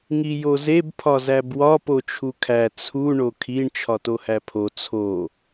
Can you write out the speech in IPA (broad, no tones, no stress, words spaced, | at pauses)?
ŋijozeb pʰɒzæbwɒ pot͡ʃʰukʰæ t͡sʰu ɳokʰiɳ t͡ʃʰɒtohæpʰo t͡sʰo